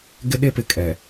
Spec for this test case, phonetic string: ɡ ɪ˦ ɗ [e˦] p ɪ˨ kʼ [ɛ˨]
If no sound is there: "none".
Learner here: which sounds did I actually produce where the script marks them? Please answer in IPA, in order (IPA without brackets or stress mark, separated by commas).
e˦, ɛ˨